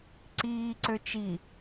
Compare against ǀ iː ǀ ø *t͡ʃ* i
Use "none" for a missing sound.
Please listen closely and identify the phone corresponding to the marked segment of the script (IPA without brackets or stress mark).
t͡ʃ